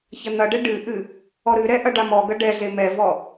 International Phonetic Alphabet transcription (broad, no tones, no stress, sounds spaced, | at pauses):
ç ɐ n̪ ɐ ɖ ɘ ɖ ɨ ʔ ɨ | ɔ ɾ ɨ ɾ ɛ ʔ ɐ ɖ a m ɔ ɡ ɐ ɖ ɛ ɮ e m ɛ v ɔ